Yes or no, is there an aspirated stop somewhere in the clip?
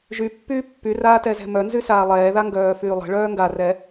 no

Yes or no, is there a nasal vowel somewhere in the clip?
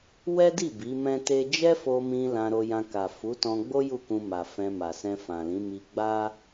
yes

